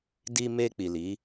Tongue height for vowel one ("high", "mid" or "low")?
high